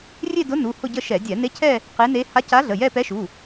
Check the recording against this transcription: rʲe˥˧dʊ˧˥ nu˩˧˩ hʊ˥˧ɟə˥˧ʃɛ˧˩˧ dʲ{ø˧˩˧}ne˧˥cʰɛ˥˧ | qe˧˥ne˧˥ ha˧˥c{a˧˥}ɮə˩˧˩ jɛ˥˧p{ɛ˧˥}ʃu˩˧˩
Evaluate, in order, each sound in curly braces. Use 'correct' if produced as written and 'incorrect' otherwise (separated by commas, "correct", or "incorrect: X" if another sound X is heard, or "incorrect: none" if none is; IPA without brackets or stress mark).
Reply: incorrect: ɛ˧˩˧, correct, correct